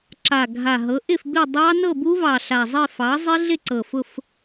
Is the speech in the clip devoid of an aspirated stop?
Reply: yes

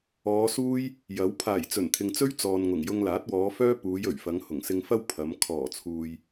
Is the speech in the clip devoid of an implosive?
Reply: yes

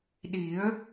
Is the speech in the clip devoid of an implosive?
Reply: no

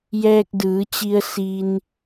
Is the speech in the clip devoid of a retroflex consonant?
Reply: yes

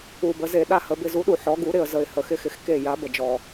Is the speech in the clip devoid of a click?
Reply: yes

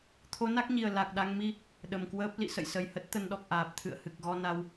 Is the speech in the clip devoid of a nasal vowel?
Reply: yes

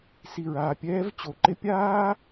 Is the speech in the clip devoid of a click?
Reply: no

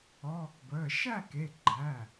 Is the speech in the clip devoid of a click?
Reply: no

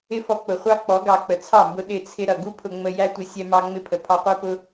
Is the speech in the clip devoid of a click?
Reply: yes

